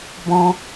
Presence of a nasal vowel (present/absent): present